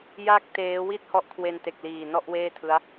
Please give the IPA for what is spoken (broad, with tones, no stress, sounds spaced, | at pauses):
j a˦˥ k̚ t eː˦˥ w i˥˩ t̚ h ɔ˦˥ ʔ kʰ w e˧ n t e˨˩ k̚ l iː˨˩ n ɔ˥˩ ʔ w eː˥˩ tʰ ɯ˦˥ a̯